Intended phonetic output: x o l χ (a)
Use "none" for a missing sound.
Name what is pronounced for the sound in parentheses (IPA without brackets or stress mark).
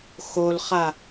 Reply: a